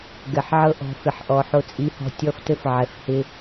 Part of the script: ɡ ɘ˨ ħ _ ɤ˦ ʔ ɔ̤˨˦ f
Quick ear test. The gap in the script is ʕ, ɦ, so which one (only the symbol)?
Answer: ʕ